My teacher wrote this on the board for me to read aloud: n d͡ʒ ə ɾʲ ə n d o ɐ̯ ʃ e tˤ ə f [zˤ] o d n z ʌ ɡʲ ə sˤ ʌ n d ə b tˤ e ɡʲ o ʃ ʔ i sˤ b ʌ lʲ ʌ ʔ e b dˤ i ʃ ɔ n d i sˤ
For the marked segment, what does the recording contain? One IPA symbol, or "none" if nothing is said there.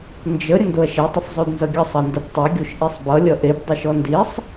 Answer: zˤ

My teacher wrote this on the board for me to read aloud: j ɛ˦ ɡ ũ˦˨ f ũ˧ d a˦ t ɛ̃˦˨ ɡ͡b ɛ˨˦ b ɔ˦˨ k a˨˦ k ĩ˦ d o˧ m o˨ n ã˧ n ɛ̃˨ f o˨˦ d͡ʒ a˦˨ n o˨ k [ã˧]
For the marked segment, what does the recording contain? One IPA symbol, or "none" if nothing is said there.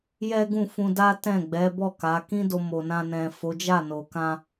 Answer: ã˧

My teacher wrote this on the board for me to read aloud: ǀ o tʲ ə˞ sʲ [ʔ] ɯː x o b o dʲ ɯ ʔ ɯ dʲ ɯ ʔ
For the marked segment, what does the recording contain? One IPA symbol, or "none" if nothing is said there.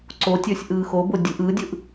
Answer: ʔ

